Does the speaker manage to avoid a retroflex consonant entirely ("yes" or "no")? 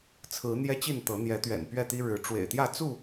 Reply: no